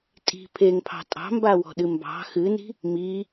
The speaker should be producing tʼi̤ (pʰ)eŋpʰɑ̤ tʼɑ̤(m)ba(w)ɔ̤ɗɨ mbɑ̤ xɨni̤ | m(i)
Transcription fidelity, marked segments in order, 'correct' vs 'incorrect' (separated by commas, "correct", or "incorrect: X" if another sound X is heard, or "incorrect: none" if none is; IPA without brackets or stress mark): correct, correct, correct, correct